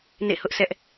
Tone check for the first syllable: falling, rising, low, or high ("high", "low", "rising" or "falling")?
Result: falling